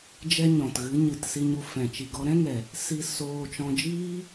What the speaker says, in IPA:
d͡ʒ ɛ˦ ɲ ɔ̃˨ t ɣ ɨ˨˦ ɲ ɨ˨ t s i˧ ɲ u˧ f ɛ̃˨ t͡ʃ i˨ ɡ ɔ˧ ɾ ɛ̃˦ ŋ ɛ˨ | s i˧ s oː˧ t͡ʃ ɔ̃˧ d͡ʒ iː˦

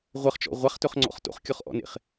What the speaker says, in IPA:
ʁʷ ə χ t͡ʃ ɔ̰ ʁʷ a χ t ɵ χ ŋ͡ǀ ɔ̰ χ t o̰ χ kʲ ɔ χ ʔ ɔ̰ n ḛ χ

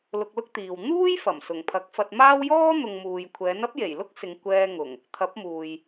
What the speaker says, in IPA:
l ʊ˧ k̚ l ʊ˥ k̚ t̪ iː˨ w n̪ uː˥ j f ɐ˨˩ m s ʊ˨˩ ŋ pʰ ɐ˨˥ k̚ f ɐ˧ t̚ m aː˥ w j ɔː˥ n̪ ʊ˨ ŋ m uː˨ j kʷʰ ɛː˨˥ n ɐ˥ p̚ j e˨˩ j l ʊ˥ k̚ s ɪ˨ ŋ kʷ ɛː˧ ŋ ʊ˨˩ ŋ | t̪ʰ ɐ˨˥ p̚ m uː˨ j

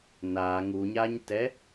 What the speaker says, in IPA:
n a ŋ u ɲ a ɲ t ɛ

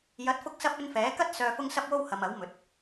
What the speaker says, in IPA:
j ɐ˨˥ t̚ f ʊ˧ k̚ s ɐ˧ p̚ ɵ˧ n f ɛː˨˥ k ɐ˥ t̚ s œː˨ f ʊ˧ ŋ s ɐ˧ p̚ w o˧ w h ɐ˨ m ɐ˨˥ w m ɵ˨˥ t̚

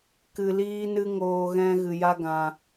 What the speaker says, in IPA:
k ɨ˨ l iː˧ n ɨ˦ ŋ oː˧ ɣ ɛ̃˦ ɣ ɨ˨ j a˦ ɡ ã˧

